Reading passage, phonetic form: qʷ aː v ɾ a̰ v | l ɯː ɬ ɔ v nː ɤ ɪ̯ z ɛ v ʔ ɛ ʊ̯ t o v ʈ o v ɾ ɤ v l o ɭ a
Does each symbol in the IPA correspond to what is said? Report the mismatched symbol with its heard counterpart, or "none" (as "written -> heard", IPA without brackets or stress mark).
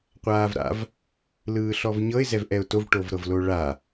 nː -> ɲ